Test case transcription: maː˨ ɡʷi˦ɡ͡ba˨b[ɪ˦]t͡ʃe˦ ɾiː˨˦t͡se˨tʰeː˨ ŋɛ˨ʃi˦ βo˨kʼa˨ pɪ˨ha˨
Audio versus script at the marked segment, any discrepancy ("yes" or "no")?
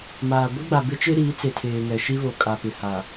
no